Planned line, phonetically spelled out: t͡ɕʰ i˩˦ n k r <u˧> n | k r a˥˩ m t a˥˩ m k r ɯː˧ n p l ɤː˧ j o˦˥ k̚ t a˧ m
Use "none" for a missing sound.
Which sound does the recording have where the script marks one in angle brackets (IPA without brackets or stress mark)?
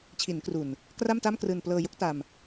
u˨˩